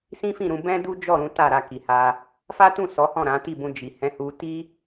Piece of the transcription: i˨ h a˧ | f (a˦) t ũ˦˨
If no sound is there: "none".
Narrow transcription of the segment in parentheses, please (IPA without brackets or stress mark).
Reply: a˦